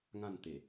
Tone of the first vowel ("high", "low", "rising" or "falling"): falling